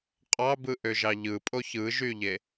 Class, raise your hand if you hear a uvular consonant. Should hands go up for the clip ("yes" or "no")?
yes